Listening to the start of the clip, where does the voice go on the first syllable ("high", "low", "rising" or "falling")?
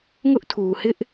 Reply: high